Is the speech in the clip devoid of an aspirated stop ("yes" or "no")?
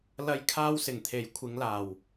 no